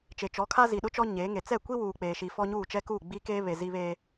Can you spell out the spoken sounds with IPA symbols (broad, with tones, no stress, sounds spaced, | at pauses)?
t͡ʃ e˨ t͡ʃ ɔ˨˦ kʰ a˦ z i˨ ɗ ʊ˦ t͡ʃ ɔ˦ ɲ e˨˦ ŋ e˨ t͡s ɛ˦˨ kʷ i˦ w uː˨ k͡p eː˨ ʃ i˨ f ɔ˦ ɲ uː˦˨ t͡ʃ ɛ˦ k uː˦˨ ɡ͡b i˦ k eː˦ β e˨ z i˦ β e˦